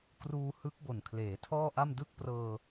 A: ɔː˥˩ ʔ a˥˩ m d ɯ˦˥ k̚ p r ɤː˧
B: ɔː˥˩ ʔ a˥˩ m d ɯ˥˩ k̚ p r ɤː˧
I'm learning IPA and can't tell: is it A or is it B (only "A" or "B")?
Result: B